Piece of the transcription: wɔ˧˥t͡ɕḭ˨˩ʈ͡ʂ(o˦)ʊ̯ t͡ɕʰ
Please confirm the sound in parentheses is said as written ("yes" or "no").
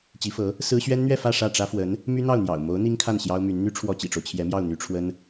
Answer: yes